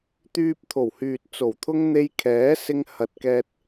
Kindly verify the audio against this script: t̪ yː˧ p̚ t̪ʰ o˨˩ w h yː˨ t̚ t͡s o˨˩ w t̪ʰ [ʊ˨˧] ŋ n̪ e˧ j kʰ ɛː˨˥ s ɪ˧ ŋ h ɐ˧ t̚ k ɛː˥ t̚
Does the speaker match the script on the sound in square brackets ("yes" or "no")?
no